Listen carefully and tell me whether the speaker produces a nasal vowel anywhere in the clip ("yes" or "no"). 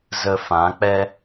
yes